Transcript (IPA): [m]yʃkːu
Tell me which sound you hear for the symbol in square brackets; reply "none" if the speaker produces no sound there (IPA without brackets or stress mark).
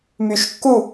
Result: m